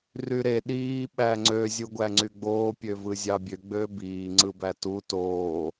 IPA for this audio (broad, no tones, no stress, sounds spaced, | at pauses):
r y ɾ e ɗ iː ɓ æ ŋ͡ǀ ø zʲ u ɡʷ æ ŋ͡ǀ y ɡ͡b oː pʲ ø v ɯ zʲ ɑ bʲ ø ɡ͡b ø b iː ŋ͡ǀ ɯ b æ t u t oː